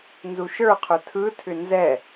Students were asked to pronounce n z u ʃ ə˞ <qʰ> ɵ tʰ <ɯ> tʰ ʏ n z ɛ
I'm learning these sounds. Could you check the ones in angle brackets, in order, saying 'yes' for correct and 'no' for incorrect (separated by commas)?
yes, yes